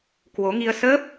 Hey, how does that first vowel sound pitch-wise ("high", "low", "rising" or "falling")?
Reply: rising